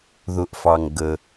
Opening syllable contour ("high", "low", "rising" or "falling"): low